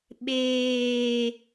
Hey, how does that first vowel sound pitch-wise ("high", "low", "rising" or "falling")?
low